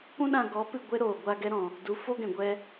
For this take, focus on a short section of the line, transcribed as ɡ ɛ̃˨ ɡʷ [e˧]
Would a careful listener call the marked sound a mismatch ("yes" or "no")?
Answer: yes